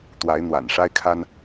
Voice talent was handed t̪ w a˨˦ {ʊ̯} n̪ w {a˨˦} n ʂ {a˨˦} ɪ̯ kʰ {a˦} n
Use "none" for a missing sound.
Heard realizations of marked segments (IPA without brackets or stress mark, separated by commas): ɪ̯, a̰˨˩, a˦, a˦